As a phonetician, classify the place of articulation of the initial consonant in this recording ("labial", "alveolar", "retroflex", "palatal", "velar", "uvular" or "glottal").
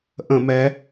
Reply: glottal